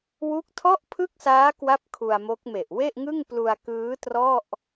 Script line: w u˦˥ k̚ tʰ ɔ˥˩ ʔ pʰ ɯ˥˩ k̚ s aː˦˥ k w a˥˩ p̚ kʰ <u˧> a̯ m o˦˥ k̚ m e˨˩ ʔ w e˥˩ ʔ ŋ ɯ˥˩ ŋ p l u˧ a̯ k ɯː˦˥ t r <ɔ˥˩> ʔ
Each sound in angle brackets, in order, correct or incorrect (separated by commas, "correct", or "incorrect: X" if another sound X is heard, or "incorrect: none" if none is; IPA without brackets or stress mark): correct, correct